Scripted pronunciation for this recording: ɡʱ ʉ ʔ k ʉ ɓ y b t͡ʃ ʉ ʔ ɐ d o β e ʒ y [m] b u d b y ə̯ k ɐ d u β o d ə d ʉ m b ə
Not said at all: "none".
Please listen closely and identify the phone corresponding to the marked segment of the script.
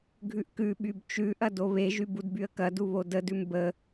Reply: none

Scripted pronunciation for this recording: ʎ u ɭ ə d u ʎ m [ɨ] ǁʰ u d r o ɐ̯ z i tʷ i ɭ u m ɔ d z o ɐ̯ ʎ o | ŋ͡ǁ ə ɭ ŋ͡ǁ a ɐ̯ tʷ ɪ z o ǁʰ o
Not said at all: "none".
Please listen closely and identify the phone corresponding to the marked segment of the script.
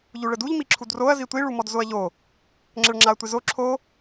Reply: i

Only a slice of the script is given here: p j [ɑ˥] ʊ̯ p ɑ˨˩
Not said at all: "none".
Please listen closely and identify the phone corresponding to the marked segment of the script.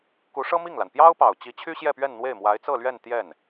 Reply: ɑ˥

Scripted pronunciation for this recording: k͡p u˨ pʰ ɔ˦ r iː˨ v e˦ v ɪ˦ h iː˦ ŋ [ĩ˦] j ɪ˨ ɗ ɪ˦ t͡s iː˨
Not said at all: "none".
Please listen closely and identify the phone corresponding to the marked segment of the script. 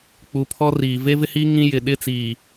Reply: ĩ˦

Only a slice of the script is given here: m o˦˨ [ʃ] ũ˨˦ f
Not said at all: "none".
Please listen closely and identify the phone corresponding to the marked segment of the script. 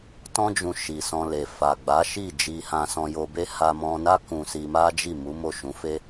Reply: ʃ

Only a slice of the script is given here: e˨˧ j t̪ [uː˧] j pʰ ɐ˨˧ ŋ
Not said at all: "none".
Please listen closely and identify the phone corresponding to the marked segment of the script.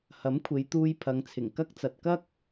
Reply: uː˧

